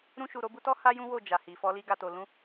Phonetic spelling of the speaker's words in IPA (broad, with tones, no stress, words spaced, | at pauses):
ɾũ˧ʃu˨ ɾo˨˦bu˧tɔ˦ ha˦ jũ˦wo˦˨ d͡ʒa˨hi˨ fɔ˧li˧ ɡa˨to˨lũ˧